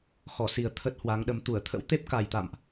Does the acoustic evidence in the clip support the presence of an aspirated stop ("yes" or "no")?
yes